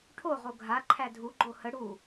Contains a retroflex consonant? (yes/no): yes